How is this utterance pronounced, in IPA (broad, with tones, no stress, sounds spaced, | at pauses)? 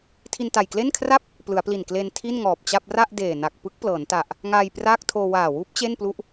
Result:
tʰ i˧ n t a˨˩ j k l e˥˩ n kʰ r a˥˩ p̚ | p l ɯ˩˦ a̯ p l i˨˩ n k l e˧ n tʰ i˥˩ n ŋ ɔː˨˩ p̚ t͡ɕ a˥˩ p̚ r a˥˩ ʔ d eː˨˩ n a˨˩ k̚ p ɯ˦˥ k̚ p l ɤː˩˦ n t a˨˩ ʔ | ŋ aː˧ j p r aː˥˩ k̚ tʰ oː˧ w aː˨˩ w uː˦˥ p̚ t͡ɕ e˥˩ n p l u˦˥ ʔ